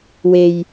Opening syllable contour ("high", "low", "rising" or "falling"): low